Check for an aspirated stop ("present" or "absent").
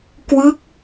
absent